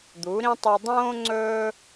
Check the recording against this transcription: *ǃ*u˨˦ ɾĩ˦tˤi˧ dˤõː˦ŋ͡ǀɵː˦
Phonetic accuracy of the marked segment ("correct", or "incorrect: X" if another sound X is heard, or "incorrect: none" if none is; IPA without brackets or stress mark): incorrect: d̪